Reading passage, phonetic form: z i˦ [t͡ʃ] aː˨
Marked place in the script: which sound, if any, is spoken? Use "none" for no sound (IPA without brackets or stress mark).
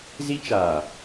t͡ʃ